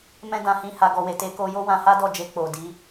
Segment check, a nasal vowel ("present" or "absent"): present